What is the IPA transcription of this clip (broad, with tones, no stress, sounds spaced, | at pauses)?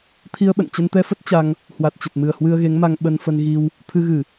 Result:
t̪ʰ i˧ ə̯ ɓ ə̰˧˨ n t͡ɕ ə˧ n t̪ ɛ˧ f ə˦˥ t̚ t͡ɕ a˧ ŋ | h w a˨˩ t̚ t͡ɕ ə˨˩ t̚ m ɨ˨˩ ə̯ h w ɨ˧ ə̯ ɣ e˨˦ ŋ m a˧ ŋ ɓ ə˧ n f ə˧ n ɣ i˧ w | t̪ʰ ɨ˧ ɣ ɨ˧˩˨